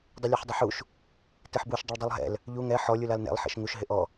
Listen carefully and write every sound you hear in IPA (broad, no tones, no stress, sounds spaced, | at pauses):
dˤ ɪ lʲ ɛ ħ dˤ ɪ ħ u ʃ | t e ħ b u ʃ dˤ ɪ ɭ dˤ u lˠ ɦ ɛ̰ l | ʎ u ŋ ɛ ħ ɔ lʲ u l a l n ɛ̰ lˠ ħ ḛ ʃ ŋ u ʃ ɦ ɪ ʔ ɔ